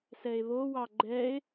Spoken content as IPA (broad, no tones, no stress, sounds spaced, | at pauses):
s ɛ e̯ β o w ɑ ɡ͡ǃ ɛ e̯